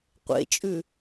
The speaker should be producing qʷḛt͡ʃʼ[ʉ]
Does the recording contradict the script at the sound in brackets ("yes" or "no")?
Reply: no